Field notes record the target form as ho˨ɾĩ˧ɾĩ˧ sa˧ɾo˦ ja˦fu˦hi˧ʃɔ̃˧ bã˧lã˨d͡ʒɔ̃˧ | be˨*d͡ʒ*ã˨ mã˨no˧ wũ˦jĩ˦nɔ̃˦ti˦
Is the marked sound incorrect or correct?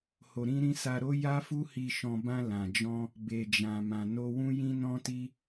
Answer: correct